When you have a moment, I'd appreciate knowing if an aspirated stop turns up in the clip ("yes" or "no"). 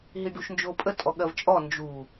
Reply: no